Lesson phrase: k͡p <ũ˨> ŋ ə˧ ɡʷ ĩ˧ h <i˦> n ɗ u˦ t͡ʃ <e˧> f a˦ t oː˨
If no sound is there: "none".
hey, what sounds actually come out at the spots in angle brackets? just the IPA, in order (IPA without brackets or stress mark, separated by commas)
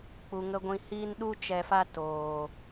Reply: u˨, iː˦, ɛ˧